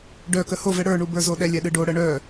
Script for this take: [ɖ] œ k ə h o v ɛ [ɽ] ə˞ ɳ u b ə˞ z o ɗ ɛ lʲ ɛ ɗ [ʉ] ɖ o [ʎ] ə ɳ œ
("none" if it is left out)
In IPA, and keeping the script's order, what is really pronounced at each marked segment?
ɖ, ɽ, ɨ, ɽ

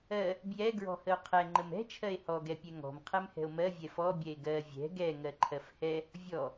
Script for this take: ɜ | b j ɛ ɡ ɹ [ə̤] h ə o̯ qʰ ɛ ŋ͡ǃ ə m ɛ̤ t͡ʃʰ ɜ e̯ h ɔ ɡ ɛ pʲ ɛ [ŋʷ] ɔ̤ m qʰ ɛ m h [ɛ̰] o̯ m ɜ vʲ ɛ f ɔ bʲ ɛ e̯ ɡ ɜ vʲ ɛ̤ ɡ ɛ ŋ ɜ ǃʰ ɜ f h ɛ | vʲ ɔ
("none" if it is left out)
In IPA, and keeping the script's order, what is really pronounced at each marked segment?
ɔ̤, ŋ, ɛ̤

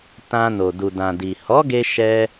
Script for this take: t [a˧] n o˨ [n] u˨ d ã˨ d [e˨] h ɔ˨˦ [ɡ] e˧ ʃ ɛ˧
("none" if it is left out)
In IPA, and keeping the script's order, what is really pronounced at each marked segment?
ã˧, d, i˨, ɡ

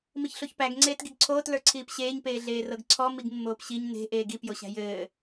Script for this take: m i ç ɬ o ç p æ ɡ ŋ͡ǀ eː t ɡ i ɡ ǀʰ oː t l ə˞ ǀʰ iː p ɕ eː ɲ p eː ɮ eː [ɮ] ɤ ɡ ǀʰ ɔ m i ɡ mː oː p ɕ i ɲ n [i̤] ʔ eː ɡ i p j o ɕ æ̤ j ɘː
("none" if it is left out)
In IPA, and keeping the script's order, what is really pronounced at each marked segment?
r, e̤

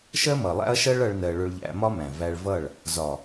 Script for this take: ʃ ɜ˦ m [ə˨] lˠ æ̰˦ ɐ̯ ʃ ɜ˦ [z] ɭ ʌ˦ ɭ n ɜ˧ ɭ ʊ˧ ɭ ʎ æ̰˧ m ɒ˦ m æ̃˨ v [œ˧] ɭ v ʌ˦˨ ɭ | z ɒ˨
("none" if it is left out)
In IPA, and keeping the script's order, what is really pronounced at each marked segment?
ʌ˨, none, æ˧

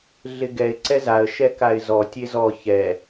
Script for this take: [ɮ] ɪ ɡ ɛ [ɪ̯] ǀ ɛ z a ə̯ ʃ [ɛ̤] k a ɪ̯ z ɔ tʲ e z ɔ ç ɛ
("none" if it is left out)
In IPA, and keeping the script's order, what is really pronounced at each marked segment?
ɮ, ɪ̯, ɛ

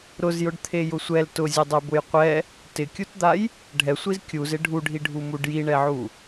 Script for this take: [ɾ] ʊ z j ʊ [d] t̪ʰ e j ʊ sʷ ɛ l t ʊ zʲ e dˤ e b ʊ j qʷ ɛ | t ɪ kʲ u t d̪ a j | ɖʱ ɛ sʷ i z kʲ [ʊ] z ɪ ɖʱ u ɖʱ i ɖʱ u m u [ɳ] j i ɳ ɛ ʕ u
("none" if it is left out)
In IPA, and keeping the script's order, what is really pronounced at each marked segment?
ɾ, ɖ, u, ɖ

